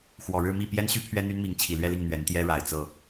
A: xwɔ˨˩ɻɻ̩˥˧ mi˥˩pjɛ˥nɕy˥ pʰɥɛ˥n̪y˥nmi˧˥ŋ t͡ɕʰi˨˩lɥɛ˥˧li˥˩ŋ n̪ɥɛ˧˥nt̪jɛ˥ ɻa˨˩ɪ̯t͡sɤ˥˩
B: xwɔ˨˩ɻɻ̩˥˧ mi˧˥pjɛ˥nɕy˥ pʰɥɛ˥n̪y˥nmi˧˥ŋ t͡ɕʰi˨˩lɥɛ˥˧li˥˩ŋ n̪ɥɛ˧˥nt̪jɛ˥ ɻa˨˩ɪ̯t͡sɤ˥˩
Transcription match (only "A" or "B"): A